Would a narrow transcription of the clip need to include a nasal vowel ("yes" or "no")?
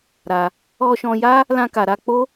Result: yes